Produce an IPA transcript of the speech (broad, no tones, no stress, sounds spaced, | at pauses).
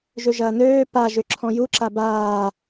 ʒ ø ʒ ɐː n øː p a ʒ ʏ ǁʰ ɔ̃ j u ǁ a b aː